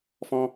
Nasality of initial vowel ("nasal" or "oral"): nasal